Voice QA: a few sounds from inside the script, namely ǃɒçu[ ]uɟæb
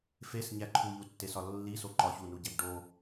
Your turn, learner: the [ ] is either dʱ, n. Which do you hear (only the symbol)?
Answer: n